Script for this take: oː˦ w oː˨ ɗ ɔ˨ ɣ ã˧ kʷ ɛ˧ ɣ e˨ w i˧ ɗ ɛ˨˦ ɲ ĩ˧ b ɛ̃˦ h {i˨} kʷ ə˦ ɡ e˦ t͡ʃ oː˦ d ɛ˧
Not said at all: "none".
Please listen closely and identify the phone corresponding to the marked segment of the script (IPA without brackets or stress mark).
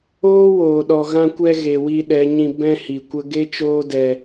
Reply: i˨